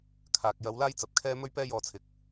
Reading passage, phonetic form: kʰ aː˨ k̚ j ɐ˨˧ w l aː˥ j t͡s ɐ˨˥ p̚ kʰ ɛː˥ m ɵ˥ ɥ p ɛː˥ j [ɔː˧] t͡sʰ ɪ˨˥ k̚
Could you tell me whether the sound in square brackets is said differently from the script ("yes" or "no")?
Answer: no